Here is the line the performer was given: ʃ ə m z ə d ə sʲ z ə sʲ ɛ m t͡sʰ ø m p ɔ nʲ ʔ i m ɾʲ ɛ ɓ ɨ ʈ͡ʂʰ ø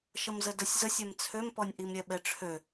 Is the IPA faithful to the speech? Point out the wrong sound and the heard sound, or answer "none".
ɨ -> ɛ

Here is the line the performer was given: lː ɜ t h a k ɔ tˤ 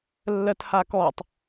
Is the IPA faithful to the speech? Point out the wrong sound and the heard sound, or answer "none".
none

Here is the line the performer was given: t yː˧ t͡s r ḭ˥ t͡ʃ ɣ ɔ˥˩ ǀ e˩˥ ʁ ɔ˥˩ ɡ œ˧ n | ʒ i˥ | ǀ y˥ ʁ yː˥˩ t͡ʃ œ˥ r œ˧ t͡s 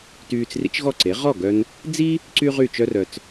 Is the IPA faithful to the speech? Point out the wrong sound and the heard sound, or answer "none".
ʒ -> d͡z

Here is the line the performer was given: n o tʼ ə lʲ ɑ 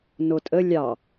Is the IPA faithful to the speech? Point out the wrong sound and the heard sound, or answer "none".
none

